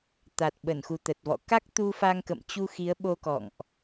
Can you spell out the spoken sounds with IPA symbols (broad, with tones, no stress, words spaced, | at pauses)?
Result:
t̪a˨˩t̚ɓə˧˩nxu˨˩ t̪ə˨˩t̚vɔ̰˧˨ ka˦˥k̚t̪u˧fa˧ŋ kə̰˧˨mt͡ɕu˧xi˨˦ə̯ɓo˧ kɔ̰˧˨ŋʔ